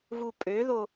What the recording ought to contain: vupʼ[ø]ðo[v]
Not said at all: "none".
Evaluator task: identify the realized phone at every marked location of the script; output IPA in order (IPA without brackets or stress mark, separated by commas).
ø, none